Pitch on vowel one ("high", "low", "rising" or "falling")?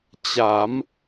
rising